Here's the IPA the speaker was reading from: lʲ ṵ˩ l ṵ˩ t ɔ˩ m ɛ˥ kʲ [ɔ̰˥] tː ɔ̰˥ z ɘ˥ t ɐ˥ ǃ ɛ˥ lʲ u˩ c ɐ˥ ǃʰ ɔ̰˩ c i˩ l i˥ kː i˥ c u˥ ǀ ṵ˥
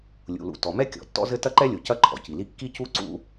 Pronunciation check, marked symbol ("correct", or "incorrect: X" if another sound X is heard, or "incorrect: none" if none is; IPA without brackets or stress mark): incorrect: ɔ̰˩